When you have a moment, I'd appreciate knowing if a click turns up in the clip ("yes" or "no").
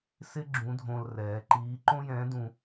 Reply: yes